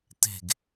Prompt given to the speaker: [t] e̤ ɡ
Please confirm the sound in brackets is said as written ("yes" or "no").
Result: yes